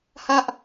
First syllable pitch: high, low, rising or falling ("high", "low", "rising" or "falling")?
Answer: high